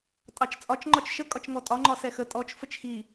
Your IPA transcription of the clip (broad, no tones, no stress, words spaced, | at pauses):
tʼɑt͡ʃt͡sʼɒt͡ʃ ŋ͡ǃɒt͡ʃʃə kʼɒt͡ʃŋɔtʼɒ ŋ͡ǃɒsɛxə tʼɔt͡ʃ fət͡ʃxi